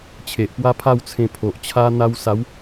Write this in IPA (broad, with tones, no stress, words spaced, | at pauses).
t͡ɕʰe˨ʔpwa˦pʰa˥˧w t͡sʰẽ˧pʰo˨ʔt͡ɕʰa˦ n̪a˧wsa˨˦w